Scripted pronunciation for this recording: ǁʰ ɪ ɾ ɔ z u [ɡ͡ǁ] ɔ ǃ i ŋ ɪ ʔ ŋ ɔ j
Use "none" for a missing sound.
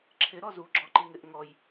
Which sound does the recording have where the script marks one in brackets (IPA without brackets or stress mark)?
ɡ͡ǁ